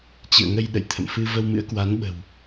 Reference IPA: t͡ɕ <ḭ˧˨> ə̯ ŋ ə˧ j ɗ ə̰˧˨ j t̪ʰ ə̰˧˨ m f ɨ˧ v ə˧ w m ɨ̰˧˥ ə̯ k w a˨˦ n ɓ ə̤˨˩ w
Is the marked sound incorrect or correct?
incorrect: ɨ̰˧˨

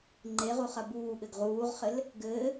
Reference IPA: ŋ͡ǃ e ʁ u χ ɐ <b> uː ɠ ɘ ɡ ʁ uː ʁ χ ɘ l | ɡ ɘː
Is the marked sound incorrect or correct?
correct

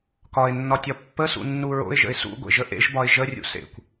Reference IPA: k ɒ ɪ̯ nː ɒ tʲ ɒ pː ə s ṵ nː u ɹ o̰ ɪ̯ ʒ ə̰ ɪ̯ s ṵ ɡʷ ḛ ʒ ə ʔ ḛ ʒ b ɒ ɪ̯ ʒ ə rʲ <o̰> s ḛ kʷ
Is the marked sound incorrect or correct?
incorrect: ṵ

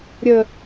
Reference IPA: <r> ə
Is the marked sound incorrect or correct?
incorrect: ɾʲ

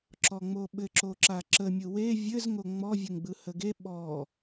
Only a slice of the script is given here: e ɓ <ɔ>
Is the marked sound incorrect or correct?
correct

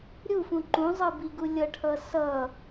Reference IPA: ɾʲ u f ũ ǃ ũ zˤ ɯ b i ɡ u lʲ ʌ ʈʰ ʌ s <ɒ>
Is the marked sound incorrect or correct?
incorrect: ʌ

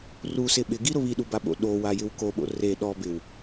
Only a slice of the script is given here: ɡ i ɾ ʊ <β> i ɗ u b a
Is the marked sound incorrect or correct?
correct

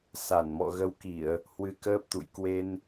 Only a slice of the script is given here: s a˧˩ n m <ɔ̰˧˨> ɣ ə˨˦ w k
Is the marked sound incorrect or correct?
correct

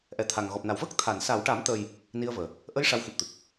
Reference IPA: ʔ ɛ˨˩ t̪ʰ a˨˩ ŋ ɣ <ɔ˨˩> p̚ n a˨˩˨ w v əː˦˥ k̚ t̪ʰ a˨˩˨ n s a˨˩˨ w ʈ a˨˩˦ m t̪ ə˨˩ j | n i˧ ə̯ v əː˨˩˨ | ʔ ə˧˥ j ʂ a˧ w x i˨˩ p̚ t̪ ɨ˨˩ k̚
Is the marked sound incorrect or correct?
correct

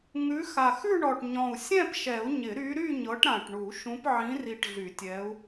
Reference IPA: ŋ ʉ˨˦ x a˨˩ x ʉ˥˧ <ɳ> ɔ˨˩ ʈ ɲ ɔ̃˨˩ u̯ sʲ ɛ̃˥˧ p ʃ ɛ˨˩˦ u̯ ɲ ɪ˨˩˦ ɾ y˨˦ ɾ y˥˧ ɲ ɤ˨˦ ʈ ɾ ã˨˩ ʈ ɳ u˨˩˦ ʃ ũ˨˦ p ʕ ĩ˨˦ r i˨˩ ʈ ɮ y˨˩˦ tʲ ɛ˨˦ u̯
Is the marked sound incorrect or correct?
correct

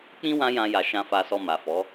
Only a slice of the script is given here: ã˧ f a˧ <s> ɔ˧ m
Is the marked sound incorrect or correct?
correct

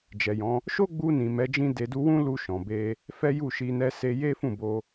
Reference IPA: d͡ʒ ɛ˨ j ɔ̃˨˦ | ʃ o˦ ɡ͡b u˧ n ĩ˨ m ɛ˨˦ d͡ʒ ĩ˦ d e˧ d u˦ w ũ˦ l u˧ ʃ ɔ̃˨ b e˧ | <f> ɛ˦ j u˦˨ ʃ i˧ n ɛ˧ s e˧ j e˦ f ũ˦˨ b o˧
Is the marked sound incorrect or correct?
correct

